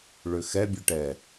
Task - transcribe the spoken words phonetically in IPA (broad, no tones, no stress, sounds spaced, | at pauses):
ɭ ʏ x ɛ bʲ u ʈ ɛ